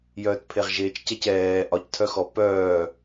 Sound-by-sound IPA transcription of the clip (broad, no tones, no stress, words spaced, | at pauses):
jœːtpʰeʁʒeːt͡ʃcɛc ɛː ʔɒctʰœxɔ pœː